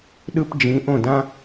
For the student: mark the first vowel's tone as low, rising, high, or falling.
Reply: high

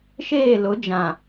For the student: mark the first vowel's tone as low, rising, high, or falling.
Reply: falling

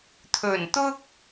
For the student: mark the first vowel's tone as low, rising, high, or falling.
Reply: low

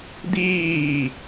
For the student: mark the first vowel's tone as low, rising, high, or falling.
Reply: falling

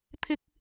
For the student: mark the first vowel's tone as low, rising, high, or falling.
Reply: high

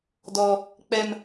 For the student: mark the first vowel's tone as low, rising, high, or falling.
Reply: high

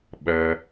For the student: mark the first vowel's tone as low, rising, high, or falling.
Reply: low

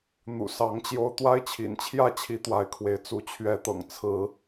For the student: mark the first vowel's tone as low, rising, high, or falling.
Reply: low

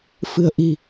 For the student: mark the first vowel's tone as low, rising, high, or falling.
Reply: low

